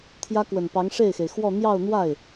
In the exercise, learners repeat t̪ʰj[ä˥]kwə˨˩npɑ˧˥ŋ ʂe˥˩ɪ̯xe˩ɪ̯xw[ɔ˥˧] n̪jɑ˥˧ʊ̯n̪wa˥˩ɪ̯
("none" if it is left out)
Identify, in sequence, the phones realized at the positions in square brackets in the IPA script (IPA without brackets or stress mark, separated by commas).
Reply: ä˥, ɔ˥˧